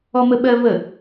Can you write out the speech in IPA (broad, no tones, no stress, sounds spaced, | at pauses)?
ɔ m ə ɓ ɜ v ə